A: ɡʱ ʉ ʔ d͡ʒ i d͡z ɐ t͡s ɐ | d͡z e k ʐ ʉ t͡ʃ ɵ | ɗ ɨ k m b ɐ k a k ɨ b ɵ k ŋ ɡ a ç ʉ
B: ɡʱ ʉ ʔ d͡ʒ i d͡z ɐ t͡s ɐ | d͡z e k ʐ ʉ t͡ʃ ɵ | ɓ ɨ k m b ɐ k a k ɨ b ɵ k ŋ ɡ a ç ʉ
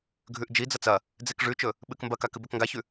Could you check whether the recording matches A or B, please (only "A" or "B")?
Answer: B